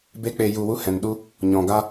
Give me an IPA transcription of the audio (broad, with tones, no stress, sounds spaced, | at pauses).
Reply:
b e˦ k͡p e˧ j u˧ w u˦ h ɛ̃˨ n ɗ u˦ | ɲ ɔ̃˨ ɡ a˦